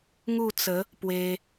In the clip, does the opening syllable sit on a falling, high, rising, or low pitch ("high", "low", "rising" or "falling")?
falling